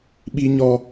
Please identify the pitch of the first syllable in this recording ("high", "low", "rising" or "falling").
high